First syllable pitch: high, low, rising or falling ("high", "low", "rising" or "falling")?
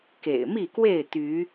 low